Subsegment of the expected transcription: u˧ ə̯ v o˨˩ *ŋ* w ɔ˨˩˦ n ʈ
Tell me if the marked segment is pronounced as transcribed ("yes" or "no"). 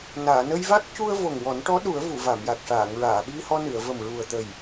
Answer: yes